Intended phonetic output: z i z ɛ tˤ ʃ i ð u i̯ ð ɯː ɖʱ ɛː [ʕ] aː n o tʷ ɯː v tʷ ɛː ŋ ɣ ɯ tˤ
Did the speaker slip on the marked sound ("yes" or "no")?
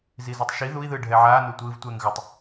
no